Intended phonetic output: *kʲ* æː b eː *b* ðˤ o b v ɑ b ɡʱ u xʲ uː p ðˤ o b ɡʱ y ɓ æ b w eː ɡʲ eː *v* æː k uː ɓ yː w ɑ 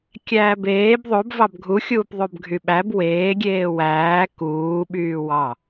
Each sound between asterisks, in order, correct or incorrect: correct, correct, incorrect

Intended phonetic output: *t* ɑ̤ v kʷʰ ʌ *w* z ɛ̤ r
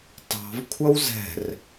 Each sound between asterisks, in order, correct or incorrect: correct, correct

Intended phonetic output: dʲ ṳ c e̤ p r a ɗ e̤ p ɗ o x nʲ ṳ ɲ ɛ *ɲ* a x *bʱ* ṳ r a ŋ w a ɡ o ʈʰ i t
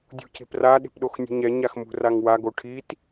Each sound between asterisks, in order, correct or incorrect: correct, incorrect

